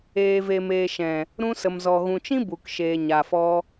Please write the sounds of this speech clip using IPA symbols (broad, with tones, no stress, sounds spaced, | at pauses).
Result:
eː˨ v e˨ m eː˨ ʃ ɛ̃˨ | ɾ ũ˧ s ə˨ m z ɔ˨ ɣ ũ˨ t͡ʃ ĩ˦ b u˨ k ʃ eː˨ ɲ a˨ f ɔ˧